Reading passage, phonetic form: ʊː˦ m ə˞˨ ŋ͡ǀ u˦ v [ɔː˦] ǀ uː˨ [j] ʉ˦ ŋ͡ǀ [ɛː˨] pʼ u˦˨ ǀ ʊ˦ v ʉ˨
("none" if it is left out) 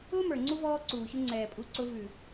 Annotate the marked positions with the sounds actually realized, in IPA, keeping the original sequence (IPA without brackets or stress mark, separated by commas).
ɔː˦, ç, ɛː˨